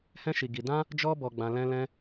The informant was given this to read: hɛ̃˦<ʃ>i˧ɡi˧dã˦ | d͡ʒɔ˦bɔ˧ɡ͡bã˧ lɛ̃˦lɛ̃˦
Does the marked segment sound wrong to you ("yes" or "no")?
no